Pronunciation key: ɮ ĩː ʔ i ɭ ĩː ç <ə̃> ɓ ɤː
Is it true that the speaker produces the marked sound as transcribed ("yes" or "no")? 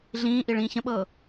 yes